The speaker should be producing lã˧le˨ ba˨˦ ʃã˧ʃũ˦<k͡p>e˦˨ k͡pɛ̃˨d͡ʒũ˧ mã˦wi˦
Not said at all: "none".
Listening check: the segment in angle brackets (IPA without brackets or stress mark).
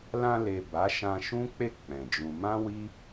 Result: k͡p